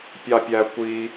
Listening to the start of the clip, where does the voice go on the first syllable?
high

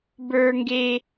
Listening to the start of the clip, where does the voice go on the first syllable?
high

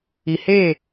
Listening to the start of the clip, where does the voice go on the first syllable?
low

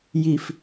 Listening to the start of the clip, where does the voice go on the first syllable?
low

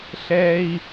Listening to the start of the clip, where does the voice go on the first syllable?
high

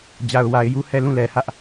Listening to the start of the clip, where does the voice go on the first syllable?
low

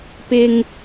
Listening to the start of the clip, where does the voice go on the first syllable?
low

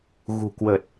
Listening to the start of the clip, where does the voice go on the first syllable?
low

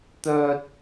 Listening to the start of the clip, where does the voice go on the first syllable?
high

